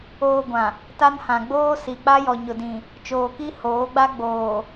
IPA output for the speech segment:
oː˨ ɡʷã˨ | ta˦nhã˨ ɡ͡boː˦si˨ k͡pa˦jɔ˨ ɲʊ˨dĩ˨ | t͡ʃoː˨ki˦ hoː˨˦ɡ͡ba˦ ɡ͡boː˨

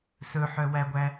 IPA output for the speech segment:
sɵħœwæɡʷæ

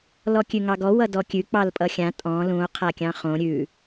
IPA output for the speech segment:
lɔkʲʉŋɑɡɔ wʌdɔkʲʉ k͡pɑlpʼʌxʲã tʼɔ̃ lũo̯ qʰakʲɑ̃χõ ɾʲʉ

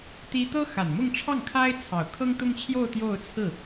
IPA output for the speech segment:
t̪i˥ t̪ɤ˥ xa˨˩nmʊ˥˧ŋʈ͡ʂʰɑ˥˩ŋkʰa˥ɪ̯ t͡sʰɑ˨˩ʊ̯kʰɤ˥ŋt̪ʊ˥ŋt͡ɕʰjo˥˧ʊ̯ t̪jo˥˧ʊ̯t͡sʰɹ̩˥˩

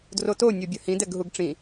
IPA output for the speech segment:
droto nʲobʲɐhĩ dɛɡɦuɡʈ͡ʂĩ

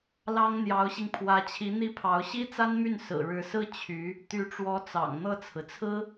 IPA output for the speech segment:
lɑ˥ŋ n̪jɑ˧˥ʊ̯ɕi˧ŋ pʰwä˧˥t͡ɕʰi˧˥ n̪i˥˩pʰɑ˧˥ʊ̯ ɕi˥t͡sa˥nmy˥˩n sɹ̩˨˩ɻɻ̩˧˥sɹ̩˥ t͡ɕʰy˧˥ | t̪y˧˥ʈ͡ʂwɔ˧˥ t͡sɑ̰˨˩ŋ n̪ɤ˥˩t͡sʰɹ̩˩t͡sʰɹ̩˥

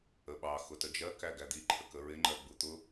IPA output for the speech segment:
əɓɑ xʊtəd͡ʒɜ kæɡæd̪i ǃʰəkəɹɪ ŋ͡ǃɜɡ͡but̪ʊ

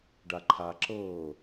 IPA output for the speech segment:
ɖaǃʰaǁɤ

